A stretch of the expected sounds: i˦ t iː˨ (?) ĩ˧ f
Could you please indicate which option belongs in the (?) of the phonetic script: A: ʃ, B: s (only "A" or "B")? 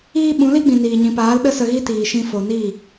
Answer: A